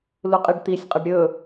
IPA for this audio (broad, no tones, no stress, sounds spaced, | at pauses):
l u qʼ i ɖ t̪ i sʲ qʼ ɐ ɖ ɾʲ ɵ